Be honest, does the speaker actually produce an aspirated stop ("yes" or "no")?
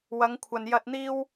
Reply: yes